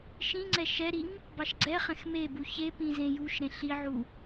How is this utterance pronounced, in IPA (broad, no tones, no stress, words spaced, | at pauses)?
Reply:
ʃĩŋ͡ǀɛ ʃɛɾiŋ | bɑʃɡ͡ǀɛχɛ̃x mebu çepĩ zẽjuʃɾẽ ɬiʕu